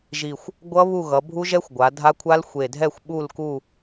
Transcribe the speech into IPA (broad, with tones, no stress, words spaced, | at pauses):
ʒi˨˩xʷ | ɡʷʌ˦˥ βu˦˨ɣʌ˩˧bʱu˦˥ʒɛ˦˥xʷ ɡʷa˩˧dʱa˦˥kʷʰa˦˥l xʷe˨˩dʱɛ˦˨xʷɓu˦˨l ku˦˨